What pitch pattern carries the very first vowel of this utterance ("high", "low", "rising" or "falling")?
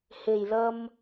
low